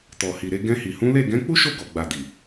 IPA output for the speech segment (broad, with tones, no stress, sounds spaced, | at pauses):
t ɔ˨ h i˨ ɾ e˧ ɡ ɛ̃˧ h i˨ h ũ˨˦ l e˦˨ ɡ ɛ̃˨˦ k͡p u˦ ʃ o˦˨ ɡ ɔ˨ ɡ͡b a˨ d i˨